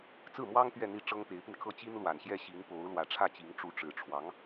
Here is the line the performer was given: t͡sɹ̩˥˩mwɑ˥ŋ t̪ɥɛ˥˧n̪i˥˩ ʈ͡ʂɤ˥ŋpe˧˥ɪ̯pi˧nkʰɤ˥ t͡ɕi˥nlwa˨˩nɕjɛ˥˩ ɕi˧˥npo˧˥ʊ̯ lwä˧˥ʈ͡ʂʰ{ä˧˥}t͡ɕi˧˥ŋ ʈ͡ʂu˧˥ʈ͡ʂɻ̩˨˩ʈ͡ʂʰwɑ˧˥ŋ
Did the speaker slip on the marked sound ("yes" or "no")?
yes